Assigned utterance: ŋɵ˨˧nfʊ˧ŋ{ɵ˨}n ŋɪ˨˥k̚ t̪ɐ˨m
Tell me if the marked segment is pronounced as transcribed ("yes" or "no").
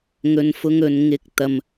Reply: yes